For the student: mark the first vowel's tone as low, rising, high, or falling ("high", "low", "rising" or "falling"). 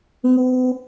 high